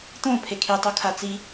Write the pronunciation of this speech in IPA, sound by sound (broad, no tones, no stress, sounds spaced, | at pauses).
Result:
t̪ õ pʰ e kʰ i tˤ o kʰ a t͡s i